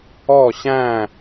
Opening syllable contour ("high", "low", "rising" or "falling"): falling